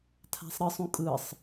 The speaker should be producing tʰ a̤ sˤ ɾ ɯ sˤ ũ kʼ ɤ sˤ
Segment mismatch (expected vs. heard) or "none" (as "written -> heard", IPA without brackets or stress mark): ɤ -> ɯ